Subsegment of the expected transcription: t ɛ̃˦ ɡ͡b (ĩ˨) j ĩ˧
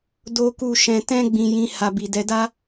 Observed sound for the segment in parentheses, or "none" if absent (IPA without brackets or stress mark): ĩ˧